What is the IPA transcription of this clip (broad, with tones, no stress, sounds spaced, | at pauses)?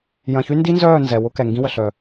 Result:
j ɐ̃˨ ç y˦ n d i˦ n z œː˦˨ n z ɛ˨ w ʊ˦ k ɛ˨ ŋ ɡ ĩ˦ w ə˨ ɬ œ˨